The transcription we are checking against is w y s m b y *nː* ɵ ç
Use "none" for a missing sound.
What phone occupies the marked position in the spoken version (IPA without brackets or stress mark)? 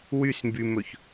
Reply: m